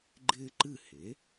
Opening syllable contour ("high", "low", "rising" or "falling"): high